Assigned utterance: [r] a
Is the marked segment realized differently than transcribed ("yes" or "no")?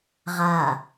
yes